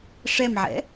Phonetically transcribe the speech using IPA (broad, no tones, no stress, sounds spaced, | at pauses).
ʂ ɛ m ʕ ɛ̰